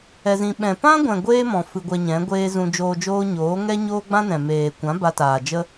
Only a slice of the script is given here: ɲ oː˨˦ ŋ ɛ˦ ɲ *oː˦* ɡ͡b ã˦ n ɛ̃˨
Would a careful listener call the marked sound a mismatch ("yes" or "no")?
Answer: no